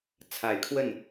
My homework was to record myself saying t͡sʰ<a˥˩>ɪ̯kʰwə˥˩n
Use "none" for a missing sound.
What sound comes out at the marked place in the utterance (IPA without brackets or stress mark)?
a˨˩